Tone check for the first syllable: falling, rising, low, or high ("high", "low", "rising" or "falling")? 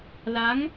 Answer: rising